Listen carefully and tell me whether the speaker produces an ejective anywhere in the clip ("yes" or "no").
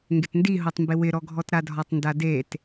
no